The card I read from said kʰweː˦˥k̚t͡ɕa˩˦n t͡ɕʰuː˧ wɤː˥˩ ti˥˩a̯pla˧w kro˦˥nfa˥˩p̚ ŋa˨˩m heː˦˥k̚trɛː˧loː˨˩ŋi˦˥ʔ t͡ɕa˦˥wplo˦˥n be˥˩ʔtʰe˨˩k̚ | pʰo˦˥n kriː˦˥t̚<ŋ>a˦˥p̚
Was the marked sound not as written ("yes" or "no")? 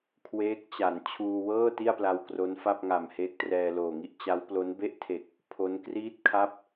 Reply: yes